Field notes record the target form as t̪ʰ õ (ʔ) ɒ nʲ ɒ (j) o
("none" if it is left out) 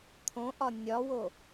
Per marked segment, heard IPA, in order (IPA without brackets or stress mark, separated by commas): ʔ, w